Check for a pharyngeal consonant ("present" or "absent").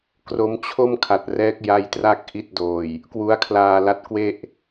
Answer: absent